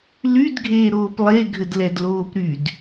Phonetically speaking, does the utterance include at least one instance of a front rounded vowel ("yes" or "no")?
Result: yes